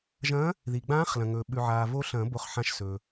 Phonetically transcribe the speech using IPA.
ʒ ɐ̃ː˧˥ | ð i˨ ɡ͡b ãː˧˥ χ l ɐ̃˨ ŋ ɵː˨ ɓ ʉ˨ ʕ aː˨ v o˧˥ ɬ ɐ̃ː˨˩˦ b o˧˥ χ ħ ã˧˥ ʃ s ɵː˨

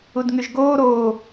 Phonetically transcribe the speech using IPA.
u d ŋ y ʒ ɡ oː ɾ oː

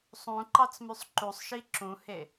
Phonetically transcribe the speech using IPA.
sˤ ũ ǃ ɑ t͡s m y sˤ ǃ u sˤ ʃ i ǁ ũ h e

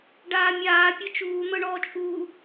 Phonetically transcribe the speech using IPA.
ɖ aː mʲ aː pʲ ɤ t͡ʃ uː n̪ ɤ ɳ ɔː t͡ʃʼ uː

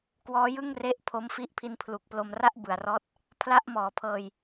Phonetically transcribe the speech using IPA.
k w ɔː˦˥ j ɯ˥˩ ŋ r e˦˥ ʔ pʰ o˦˥ m f i˦˥ ʔ pʰ i˧ n pʰ l u˨˩ k̚ p l o˧ m r a˥˩ ʔ b ɯ˨˩ a̯ r ɔː˦˥ t̚ | pʰ l a˥˩ ʔ m ɔː˩˦ pʰ ɤː˧ j

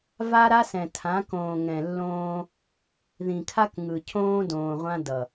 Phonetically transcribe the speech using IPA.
v a˦ ɾ a˦ s ɛ̃˨ tʰ ã˨˦ k õː˨ ŋ ɛ̃˨ lː õː˦ | ð ĩ˨ kʰ a˦ k ŋ ɯ˨ cʰ õː˦ d õː˨ ʁʷ ã˦ d ʌ˨

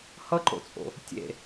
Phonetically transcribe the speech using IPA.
h ʌ ǃ o̰ t͡sʼ o̰ | tʲ ḛ

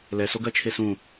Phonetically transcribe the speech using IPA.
l ɛ s o ɡ ɜ t͡ʃʰ e s ũ

